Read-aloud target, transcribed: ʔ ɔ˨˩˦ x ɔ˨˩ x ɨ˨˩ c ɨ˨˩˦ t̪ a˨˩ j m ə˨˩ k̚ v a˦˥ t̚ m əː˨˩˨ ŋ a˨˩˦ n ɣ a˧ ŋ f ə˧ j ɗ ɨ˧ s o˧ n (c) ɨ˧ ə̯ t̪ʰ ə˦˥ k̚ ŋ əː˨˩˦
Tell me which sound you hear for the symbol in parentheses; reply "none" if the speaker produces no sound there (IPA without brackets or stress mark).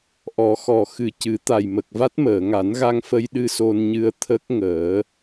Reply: ɲ